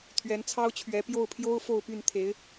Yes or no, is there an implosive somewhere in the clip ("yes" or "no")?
no